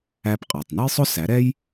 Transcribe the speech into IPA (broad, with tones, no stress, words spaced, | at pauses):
æ˧pqʼɑ˩tˤnə˥jsˤʊ˥ sæ˩˥ɾɛ˥j